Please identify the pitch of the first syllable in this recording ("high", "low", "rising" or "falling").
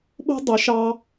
high